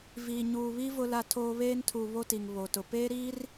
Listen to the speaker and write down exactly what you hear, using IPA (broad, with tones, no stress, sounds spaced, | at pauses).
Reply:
v iː˨ ɲ uː˨ β i˦ v ʊ˦ l a˦ tʰ oː˦ β eː˦ n tʰ u˨ β o˦ t i˨ ŋ β o˨ t ʊ˨ p eː˦ ɾ iː˦ r